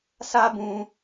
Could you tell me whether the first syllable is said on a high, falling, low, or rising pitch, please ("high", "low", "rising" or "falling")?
high